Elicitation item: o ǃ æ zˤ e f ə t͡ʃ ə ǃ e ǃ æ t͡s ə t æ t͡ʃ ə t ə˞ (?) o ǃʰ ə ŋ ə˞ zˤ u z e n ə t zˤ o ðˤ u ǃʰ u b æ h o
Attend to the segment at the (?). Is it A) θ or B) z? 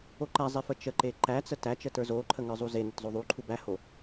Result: B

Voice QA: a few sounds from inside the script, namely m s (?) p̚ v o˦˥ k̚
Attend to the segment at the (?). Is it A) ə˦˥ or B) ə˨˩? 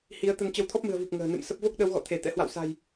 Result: A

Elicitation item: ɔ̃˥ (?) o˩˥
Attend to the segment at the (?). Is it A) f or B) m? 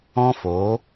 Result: A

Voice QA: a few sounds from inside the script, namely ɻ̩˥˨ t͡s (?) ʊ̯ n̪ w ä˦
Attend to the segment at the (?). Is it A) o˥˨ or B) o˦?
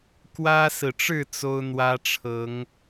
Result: B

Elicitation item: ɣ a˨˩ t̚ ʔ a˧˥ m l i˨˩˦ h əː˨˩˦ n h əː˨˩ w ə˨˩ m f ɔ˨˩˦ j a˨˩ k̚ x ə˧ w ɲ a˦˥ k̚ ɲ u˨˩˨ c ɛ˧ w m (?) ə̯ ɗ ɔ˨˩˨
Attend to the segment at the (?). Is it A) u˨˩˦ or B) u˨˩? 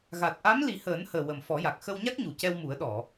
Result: A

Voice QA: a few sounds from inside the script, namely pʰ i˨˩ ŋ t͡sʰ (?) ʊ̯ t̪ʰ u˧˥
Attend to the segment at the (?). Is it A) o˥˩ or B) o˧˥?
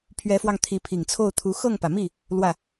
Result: A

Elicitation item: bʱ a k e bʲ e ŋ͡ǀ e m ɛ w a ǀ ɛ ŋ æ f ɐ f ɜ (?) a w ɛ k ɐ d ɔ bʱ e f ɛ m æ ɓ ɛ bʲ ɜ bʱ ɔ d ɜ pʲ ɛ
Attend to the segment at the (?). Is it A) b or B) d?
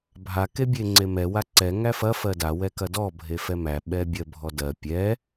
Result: B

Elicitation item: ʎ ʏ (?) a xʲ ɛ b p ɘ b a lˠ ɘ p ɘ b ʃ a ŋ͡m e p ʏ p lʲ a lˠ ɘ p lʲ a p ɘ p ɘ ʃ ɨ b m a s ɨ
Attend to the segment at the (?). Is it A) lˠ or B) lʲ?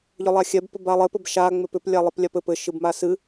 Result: A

